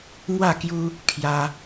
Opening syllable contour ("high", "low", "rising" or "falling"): falling